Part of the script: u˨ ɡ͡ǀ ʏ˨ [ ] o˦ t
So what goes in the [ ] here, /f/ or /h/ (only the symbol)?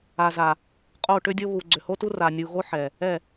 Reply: h